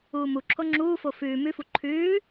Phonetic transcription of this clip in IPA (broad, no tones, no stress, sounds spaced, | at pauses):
uː m u ǁʰ o ŋ͡ǁ uː f o f ʉː m ʉ f u ǃʰ ʉː